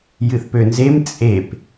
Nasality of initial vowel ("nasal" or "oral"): oral